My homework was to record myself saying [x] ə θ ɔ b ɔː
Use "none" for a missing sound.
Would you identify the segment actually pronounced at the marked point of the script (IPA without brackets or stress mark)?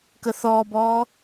k